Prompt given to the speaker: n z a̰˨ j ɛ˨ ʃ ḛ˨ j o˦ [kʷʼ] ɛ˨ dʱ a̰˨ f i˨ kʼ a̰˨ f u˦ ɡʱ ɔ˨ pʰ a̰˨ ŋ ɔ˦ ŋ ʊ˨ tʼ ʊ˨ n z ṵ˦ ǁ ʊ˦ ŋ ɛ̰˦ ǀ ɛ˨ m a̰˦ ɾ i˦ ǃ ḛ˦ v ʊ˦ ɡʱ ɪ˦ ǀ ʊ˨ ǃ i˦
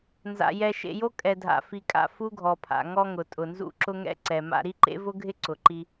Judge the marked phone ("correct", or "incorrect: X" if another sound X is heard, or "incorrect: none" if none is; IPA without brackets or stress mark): incorrect: kʼ